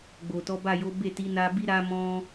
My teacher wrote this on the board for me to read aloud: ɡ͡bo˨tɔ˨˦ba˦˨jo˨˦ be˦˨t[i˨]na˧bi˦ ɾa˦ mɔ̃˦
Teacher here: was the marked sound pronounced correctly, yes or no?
no